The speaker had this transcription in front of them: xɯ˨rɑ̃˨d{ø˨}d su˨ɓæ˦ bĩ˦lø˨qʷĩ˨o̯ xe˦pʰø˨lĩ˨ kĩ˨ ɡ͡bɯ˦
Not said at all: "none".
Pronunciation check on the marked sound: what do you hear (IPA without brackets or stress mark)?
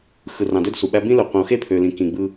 ø˦